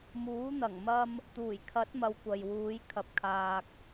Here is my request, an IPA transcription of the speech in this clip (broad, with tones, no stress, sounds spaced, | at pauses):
m uː˨˥ n̪ ɐ˨˩ ŋ m ɐ˧ m | t̪ uː˨˩ j kʰ ɐ˨˥ t̚ m ɐ˨˧ w kʷ ɐ˨ j w uː˨˧ j kʰ ɐ˨ p̚ kʰ aː˨ k̚